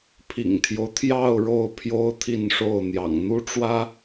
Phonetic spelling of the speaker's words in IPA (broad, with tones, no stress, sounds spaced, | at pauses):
pʰ ḭ˨˩ ŋ t̪ʰ j o˦ ʊ̯ t̪ʰ j ɑ˥˧ ʊ̯ ɻ o˥˩ ʊ̯ pʰ j o˥ ʊ̯ t̪ʰ i˥˧ n ʂ o˥˩ ʊ̯ n̪ j ɑ̰˨˩ ŋ n̪ u˥ ʈ͡ʂ w ä˥